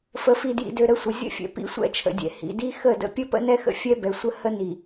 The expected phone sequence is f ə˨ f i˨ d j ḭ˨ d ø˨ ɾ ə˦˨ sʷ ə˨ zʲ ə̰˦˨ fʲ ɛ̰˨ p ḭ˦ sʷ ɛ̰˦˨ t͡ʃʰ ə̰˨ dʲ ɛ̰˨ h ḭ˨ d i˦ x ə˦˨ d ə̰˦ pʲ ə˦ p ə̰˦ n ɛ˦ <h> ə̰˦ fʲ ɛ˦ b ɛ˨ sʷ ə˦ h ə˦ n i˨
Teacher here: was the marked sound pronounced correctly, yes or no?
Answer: no